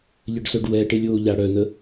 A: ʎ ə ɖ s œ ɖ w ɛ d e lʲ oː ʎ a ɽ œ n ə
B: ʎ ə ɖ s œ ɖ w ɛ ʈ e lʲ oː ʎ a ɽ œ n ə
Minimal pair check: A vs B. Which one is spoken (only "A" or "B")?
B